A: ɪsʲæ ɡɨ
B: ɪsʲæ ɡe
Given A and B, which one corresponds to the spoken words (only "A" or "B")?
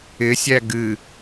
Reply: A